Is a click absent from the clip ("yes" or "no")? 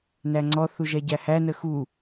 no